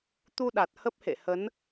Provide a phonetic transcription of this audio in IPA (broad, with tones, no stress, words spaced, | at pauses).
t̪u˧ɗa˨˩t̚ hə˦˥p̚hḛ˧˨hə˨˦n